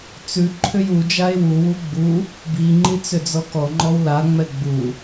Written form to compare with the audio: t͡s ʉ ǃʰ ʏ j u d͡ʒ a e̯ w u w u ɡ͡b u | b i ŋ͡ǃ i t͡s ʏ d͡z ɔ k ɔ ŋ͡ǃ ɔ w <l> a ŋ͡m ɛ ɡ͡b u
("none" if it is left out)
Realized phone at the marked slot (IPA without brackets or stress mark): l